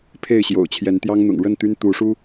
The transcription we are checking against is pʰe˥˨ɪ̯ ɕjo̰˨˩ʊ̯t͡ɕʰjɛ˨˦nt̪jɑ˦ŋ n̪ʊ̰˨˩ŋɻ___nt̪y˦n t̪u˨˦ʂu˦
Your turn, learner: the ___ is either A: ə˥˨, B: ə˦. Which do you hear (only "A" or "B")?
A